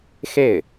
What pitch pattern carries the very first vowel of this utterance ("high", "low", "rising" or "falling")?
falling